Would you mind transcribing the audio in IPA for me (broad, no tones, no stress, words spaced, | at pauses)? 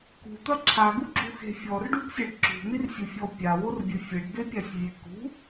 kṳt̪ɐ ǁʰaɡuɡ͡ǁuxe̤ fʲɔrɖuɡsʲɐɖ ǁṳn̪irsʲufʲɔ pʲaworbʲɘ fʲɘɖbepʲasʲvʲe kṳ